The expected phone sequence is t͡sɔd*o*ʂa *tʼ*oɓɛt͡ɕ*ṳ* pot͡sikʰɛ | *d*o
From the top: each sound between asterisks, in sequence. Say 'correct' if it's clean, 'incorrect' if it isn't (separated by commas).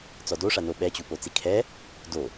correct, incorrect, incorrect, correct